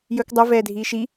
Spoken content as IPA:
j ɵ k dˤ œ v ɛː dʱ iː ʃ i

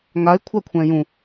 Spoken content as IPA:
ŋ a ɪ̯ kʷʰ a kʷʰ ɛ̃ j ũ

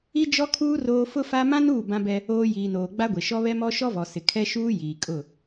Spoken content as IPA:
i˦ d͡ʒ ɔ˦ kʰ uː˦ r oː˦ f ʊ˦ f a˦ m ã˦ n uː˦˨ b ã˦ b ɛ˦ | oː˦ j iː˨ n oː˨ ɡ͡b a˦ ɡʷ e˨ ʃ ɔ˦ β ɛ˦ m ɔ˦ ʃ ɔ˦ v ɔ˨ s ɪ˨ kʰ ɛ˦ ʃ uː˦ j iː˨ kʼ ʊ˦˨

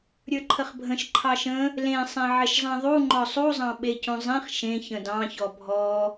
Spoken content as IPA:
ɾʲ ə˞ ǃʰ ə χ bʱ ə̃ ʃ ǃʰ ɑ ʃ ə̃ | l ẽ sˤ ẽ ʕ ɪ ʃ zˤ ɛ̃ ðˤ u ŋ͡ǃ ɔ sˤ u zˤ ɑ̃ ɓ e c ũ zˤ ẽ χ ʃ ẽ ç ə̃ d ɑ̃ ç ɔ bʱ ɔ

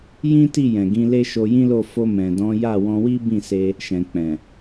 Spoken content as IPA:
j ĩ˦ t i˦˨ j ɛ̃˨ ɡ ĩ˧ l e˦ ʃ o˧ j ĩ˦ l o˦˨ f o˧ m ɛ̃˨ d ɔ̃˨˦ j a˦˨ w ɔ̃˧ w i˦ b ĩ˦˨ s e˧ | ʃ ɛ̃˨ k͡p ɛ̃˨

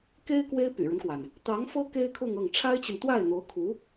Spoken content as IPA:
k e˥ ɪ̯ k w e˥ ɪ̯ p y̰˨˩ ɻ ə˦ n k w a˩ n | t̪ ɑ˧˥ ŋ f ɤ˥ k e˥ ɪ̯ kʰ ʊ˥˧ ŋ ɤ˥˩ ŋ ʈ͡ʂʰ a˥ ɪ̯ t͡ɕ i˨ n t̪ w a˥˩ ɪ̯ n̪ o˧˥ ʊ̯ kʰ u˧˥

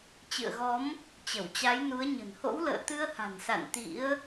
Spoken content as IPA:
t͡ɕ ɨ̰˧˨ ə̯ ɣ ɔ˨˦ m | t͡ɕ ə˧˩ w t͡ɕ a˨˦ j n u˨˦ ə̯ ɲ ə̤˨˩ n h o̰˧˥ w l ə̰ː˧˨ t̪ ɨ˧ ə̯ h a̤˨˩ n s a̰˧˨ n t̪ ḭ˧˥ ə̯

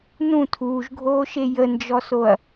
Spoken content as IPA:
n ũ tʰ uː ʒ ɡʱ oː ʃ e j ə n d͡ʒ ɔ s o ɐ̯

